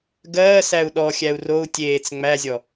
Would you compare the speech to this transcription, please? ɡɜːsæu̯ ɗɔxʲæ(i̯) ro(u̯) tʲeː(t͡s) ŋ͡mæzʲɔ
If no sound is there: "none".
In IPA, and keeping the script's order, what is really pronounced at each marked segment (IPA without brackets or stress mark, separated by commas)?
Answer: u̯, u̯, t͡s